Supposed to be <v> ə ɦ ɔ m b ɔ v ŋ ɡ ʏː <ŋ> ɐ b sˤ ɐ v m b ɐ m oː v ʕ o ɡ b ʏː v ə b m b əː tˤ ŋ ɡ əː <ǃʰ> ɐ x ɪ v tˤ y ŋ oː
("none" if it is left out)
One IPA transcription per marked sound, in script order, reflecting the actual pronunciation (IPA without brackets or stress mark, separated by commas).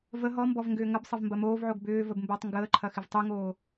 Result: v, ŋ, ǃʰ